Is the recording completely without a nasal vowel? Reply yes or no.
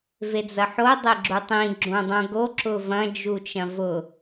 no